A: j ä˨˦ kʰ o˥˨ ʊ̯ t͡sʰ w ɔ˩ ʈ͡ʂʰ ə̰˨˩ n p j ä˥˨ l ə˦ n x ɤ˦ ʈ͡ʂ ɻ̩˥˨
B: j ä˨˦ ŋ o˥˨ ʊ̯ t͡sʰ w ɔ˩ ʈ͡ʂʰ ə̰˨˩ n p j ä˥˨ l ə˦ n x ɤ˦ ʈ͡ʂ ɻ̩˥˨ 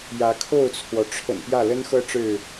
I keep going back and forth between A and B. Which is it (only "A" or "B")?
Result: A